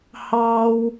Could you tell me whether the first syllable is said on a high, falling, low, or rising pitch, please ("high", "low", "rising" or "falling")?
high